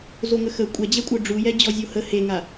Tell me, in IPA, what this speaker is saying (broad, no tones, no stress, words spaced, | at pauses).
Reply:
zoŋəxə kʷʼɛd͡ʑɛkʷʼœ ɖ͡ʐujɛ d͡ʑɔzʲohə heŋa